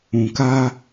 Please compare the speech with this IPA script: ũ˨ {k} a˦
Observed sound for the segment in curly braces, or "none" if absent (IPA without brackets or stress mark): k